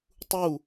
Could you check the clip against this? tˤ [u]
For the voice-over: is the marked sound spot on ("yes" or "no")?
yes